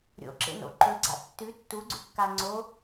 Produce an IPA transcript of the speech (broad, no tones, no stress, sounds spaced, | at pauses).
ɾʲ o̰ ǁ ḛ n o̰ ǃ ɵ ɡ͡ǀ a̰ tː ʉ tː u ɡ͡ǀ ʉ kː a ŋ͡ǀ o